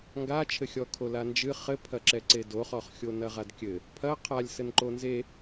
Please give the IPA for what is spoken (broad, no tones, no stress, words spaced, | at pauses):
ŋɡat͡ʃʰɘxʲɔ kʰoland͡ʒɨ χɘpʰɐǁɛ ǀedoχɔχxʲo nɐʁadkʲɘ | pʰɐ qʰalʲsɘnǃo nze